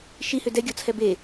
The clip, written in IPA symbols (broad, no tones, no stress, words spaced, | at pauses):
ʃihʏ dɛɡʲɔt͡sʰɛ be